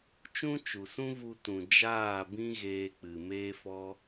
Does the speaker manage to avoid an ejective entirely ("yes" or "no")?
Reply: yes